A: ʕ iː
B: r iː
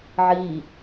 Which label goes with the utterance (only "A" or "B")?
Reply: A